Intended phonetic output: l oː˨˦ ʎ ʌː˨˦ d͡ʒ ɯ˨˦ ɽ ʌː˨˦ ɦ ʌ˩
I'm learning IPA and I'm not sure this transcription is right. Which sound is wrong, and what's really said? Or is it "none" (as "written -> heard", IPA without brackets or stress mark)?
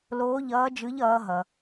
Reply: ɽ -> ʎ